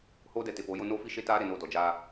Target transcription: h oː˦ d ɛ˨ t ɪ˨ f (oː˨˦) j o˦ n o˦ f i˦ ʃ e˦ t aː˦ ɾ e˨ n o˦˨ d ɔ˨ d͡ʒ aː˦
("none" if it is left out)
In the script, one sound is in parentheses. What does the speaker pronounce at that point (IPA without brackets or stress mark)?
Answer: oː˨˦